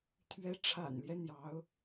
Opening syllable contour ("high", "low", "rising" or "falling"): rising